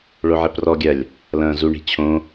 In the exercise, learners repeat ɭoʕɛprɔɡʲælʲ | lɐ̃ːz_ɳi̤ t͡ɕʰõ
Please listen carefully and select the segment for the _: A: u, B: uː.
A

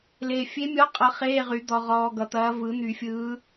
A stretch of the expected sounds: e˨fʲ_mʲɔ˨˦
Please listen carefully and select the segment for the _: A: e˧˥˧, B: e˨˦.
B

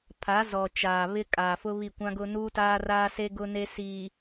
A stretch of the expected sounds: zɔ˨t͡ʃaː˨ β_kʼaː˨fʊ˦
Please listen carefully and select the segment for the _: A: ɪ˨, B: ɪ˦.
B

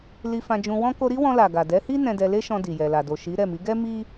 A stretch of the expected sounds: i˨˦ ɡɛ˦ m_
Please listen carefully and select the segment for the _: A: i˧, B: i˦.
B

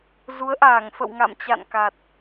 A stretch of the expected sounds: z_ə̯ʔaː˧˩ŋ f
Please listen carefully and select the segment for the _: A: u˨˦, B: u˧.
A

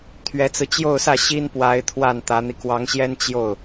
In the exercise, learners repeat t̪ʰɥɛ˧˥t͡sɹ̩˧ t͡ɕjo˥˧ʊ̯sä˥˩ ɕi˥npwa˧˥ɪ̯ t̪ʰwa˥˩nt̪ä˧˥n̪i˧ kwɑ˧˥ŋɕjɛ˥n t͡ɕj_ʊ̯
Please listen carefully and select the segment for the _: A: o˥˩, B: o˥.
A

